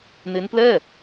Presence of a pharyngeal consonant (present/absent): absent